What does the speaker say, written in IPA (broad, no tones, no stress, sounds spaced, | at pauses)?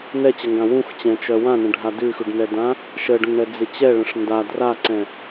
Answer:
n ɛ t͡ɕ ə ŋ ɡ ã w ũ x t͡ɕ ɛ̃ t͡ʃ œ w ã n ə̃ ɖʱ a d ʉ x ʉ ɖ n ɛ d ã | ʃ ə ɖ ə̃ ŋ ɳ ɛ d͡z ɪ t͡ɕ ɛ ɭ ə̃ ʂ n d a d r a ǀ ɛ̃